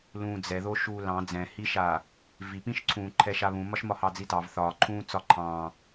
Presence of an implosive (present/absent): absent